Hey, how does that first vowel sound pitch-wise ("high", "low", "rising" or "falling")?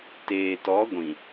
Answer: low